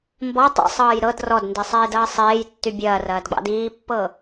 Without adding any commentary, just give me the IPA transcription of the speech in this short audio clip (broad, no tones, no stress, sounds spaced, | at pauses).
m b ɔ tˤ ḭ sˤ ɤː j ɾ ɤ d r ɔ d n d i sˤ eː d ɐː sˤ eː j tː y bʲ ɐː r ɐː d ɡ͡b ɑ̰ d iː pː ɤ